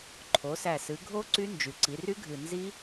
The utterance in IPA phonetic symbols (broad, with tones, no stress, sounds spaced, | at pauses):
ǃʰ o˩˧ s æ˨˩ s ɨ˩˧ ɡʱ o˦˥ ǀ y˦˥ n d͡ʒ y˩˧ ǀ i˩˧ r y˦˥ ɡʱ ɨ˨˩ n z i˦˥